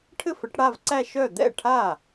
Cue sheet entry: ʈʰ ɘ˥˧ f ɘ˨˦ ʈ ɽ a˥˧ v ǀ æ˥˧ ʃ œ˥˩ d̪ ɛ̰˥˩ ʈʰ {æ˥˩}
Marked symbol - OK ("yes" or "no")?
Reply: no